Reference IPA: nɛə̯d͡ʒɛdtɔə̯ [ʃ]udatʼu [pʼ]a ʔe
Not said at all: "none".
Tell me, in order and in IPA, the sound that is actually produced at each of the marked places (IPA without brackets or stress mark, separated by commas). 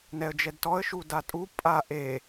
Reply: ʃ, pʼ